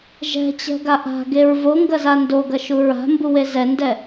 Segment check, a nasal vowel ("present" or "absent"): absent